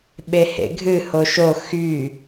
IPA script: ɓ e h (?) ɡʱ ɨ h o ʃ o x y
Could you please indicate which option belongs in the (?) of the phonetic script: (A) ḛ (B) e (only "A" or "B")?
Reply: A